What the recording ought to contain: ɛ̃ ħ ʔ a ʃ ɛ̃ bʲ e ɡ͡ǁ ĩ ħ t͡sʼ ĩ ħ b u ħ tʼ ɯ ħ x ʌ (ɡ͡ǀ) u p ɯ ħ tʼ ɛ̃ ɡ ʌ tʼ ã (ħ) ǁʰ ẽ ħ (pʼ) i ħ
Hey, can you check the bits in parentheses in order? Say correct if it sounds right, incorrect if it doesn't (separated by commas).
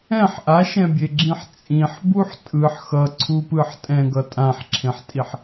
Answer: incorrect, correct, incorrect